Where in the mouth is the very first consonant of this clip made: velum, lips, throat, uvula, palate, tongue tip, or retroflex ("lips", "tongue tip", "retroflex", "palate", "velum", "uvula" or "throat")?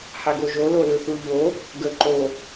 throat